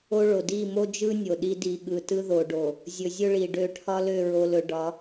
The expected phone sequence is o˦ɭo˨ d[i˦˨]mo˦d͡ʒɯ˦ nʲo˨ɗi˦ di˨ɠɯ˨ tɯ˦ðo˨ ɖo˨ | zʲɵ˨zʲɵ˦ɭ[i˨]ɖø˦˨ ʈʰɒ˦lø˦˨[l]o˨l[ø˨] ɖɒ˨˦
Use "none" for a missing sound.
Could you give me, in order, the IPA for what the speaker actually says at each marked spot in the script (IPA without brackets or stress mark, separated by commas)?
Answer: i˦˨, i˨, ɹ, ɵ˨